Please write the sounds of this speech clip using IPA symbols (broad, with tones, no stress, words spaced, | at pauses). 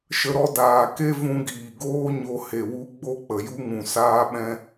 ʃə˧ɾɔ˦daː˨ ke˦vũ˧ɡiː˨ɡoː˦ ɲo˧he˨wu˦ ɡ͡bo˦k͡pə˨ju˦ŋũ˨ saː˦ɓɛ̃˦